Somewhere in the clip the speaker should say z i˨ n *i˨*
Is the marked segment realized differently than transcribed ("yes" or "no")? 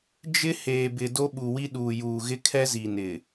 yes